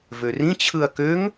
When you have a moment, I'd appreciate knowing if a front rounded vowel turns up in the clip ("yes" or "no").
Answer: yes